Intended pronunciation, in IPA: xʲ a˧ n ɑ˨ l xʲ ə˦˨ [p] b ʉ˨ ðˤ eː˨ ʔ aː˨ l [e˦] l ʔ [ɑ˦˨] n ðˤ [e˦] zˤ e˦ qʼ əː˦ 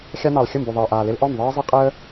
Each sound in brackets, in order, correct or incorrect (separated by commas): incorrect, incorrect, incorrect, incorrect